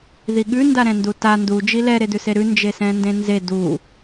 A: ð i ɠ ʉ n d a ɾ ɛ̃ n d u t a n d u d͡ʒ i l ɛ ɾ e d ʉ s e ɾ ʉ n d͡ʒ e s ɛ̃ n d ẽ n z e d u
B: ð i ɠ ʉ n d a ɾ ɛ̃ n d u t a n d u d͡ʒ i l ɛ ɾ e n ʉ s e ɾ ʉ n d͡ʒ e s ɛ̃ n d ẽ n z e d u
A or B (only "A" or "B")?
A